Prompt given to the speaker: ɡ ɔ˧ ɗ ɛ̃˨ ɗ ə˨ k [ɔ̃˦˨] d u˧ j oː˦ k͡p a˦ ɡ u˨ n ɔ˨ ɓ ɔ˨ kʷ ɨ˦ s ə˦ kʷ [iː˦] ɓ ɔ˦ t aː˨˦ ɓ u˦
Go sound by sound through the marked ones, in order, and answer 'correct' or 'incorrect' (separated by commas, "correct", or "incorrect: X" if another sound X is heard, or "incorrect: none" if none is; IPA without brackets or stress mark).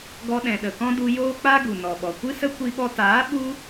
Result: incorrect: ɔ̃˦, incorrect: i˦